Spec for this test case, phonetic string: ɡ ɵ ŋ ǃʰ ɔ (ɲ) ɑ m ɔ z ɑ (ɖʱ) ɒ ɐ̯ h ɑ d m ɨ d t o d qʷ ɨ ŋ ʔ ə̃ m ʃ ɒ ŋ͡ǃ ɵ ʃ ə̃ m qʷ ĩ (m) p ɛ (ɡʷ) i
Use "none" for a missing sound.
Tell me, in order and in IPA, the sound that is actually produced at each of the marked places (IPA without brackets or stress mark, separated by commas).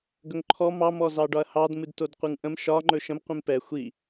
m, ɖ, m, xʷ